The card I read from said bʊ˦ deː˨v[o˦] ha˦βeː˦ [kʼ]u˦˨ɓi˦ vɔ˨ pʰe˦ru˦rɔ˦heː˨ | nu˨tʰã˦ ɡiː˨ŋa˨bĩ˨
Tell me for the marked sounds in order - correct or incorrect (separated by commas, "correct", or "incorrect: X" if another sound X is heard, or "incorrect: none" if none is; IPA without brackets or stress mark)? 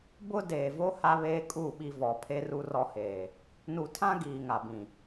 correct, correct